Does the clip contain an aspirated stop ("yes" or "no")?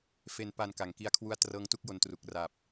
yes